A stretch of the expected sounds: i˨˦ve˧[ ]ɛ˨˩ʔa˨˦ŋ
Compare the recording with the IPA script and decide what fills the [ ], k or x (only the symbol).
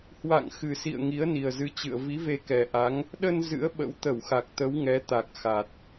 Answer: k